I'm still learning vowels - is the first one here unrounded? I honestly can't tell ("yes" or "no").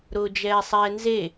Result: no